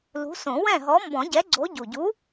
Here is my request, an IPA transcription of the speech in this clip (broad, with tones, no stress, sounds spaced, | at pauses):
l ṳ˨˥ s õ˨˩˦ w ɛ̃˥˨ ɦ ɔ˨˥ m b ɔ̃˨˩˦ ɟ ɛ˨˥ ɡ͡ǀ o˨˥ ɟ u˨˩ ɟ u˨˥